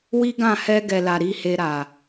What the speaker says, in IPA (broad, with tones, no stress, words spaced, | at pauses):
wi˦ɡã˦˨ hɛ˧ɡɛ˨la˨ ɾi˨he˨ ɾa˨